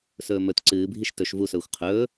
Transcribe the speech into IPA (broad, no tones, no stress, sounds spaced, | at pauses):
s ɵː m ɵ t ǀ ɨː bʱ i ʃ t ɵ ʃ v u s ɵː xʷ qʰ ɵː